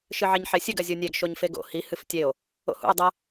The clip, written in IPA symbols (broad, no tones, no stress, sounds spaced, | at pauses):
ʃ ɨ ʕ e ɲ ħ e sʲ ɨ ɡ ɐ zʲ o nʲ e ɡ ʃ o ɲ f e ɡ o̰ h i h ɨ f tʲ e o̯ | o̰ h ṵ o̯ dˤ ɐ